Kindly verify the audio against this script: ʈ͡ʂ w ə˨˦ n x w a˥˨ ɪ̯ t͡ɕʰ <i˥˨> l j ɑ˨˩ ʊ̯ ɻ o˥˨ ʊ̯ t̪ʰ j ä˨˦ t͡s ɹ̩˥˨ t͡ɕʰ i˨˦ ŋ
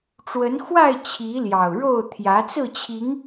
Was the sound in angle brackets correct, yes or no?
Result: no